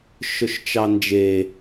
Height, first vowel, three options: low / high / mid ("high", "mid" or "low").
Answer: mid